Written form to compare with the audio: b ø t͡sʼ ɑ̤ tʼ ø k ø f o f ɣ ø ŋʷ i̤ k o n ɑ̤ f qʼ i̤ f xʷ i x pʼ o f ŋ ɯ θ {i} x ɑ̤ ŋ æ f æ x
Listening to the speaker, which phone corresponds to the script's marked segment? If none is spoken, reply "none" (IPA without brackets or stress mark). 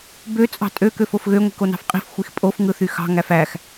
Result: y